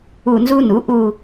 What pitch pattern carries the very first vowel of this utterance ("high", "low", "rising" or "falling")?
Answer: falling